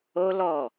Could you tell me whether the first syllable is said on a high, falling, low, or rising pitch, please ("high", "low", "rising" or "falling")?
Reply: high